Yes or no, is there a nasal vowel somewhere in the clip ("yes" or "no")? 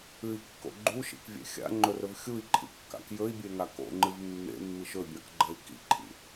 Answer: no